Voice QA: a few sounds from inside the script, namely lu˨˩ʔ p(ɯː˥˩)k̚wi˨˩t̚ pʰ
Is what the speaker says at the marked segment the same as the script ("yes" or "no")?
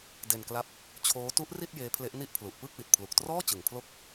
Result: yes